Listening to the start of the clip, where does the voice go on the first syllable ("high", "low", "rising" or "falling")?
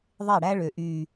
falling